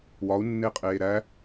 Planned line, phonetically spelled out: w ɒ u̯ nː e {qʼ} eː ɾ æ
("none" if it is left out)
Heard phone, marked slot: qʼ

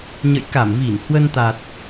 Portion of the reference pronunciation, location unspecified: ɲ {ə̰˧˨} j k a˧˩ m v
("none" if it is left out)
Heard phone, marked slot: ə̰˧˨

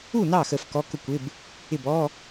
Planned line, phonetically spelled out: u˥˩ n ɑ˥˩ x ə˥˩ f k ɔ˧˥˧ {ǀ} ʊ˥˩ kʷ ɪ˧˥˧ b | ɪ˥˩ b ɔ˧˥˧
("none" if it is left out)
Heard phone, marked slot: k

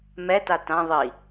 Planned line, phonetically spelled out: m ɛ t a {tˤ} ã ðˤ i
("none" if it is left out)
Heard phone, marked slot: t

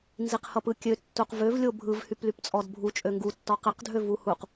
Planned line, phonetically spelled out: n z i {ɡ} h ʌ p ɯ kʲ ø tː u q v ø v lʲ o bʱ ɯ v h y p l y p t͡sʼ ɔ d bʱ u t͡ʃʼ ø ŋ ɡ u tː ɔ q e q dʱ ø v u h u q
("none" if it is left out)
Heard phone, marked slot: q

